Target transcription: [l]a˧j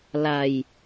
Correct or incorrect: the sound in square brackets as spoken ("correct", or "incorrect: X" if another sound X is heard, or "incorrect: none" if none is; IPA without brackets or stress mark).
correct